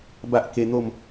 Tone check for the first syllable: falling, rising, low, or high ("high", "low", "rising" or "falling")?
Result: high